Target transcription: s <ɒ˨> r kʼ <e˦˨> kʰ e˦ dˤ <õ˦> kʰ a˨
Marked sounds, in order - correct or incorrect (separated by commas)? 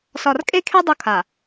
correct, incorrect, incorrect